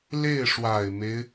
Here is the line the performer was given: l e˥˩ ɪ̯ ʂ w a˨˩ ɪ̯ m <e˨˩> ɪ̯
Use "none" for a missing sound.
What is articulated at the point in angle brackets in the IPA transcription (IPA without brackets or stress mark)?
e˦